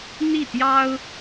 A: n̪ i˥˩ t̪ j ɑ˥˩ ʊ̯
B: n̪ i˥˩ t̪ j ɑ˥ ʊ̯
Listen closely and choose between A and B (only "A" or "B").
B